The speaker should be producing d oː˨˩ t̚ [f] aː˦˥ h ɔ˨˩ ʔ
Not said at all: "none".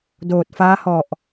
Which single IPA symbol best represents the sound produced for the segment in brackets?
f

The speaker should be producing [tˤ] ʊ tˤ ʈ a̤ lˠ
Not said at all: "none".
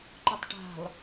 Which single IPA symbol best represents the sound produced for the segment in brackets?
ǃ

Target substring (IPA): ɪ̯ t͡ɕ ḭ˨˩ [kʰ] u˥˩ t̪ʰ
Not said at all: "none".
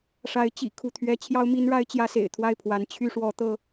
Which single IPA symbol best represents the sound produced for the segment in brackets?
kʰ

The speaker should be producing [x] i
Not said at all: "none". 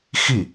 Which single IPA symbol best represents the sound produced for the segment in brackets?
x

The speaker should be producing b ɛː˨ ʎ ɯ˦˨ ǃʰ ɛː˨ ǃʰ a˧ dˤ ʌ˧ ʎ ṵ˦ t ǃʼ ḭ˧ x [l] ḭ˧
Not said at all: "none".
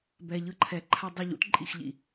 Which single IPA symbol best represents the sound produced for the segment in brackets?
ʎ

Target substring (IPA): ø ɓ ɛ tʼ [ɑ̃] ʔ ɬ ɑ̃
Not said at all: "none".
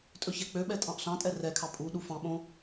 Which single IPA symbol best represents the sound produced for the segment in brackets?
ɑ̃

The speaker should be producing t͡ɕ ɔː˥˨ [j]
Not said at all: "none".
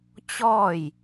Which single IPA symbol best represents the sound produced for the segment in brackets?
j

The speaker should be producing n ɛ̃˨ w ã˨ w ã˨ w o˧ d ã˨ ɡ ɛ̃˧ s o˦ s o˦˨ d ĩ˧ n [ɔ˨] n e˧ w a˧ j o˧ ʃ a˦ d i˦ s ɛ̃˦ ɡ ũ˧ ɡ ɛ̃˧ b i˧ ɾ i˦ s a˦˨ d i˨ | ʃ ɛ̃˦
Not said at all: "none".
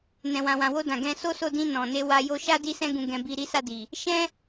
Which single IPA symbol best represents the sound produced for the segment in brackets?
ɔ̃˨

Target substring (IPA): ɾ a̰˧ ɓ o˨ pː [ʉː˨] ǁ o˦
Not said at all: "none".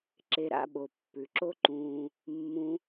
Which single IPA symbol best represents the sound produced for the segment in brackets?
ʉ˨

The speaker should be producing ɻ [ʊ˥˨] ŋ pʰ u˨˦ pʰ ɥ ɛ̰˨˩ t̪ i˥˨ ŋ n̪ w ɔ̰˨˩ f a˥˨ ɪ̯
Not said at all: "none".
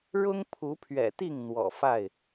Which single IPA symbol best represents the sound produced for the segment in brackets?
ʊ˦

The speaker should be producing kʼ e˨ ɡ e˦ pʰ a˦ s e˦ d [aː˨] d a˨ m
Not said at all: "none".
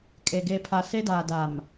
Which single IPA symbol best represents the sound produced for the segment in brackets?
aː˨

